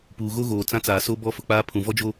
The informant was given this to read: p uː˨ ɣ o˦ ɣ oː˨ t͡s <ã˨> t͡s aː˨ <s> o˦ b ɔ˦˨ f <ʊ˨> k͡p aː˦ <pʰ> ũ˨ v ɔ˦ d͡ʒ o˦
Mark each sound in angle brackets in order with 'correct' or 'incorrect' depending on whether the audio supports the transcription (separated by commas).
incorrect, correct, correct, correct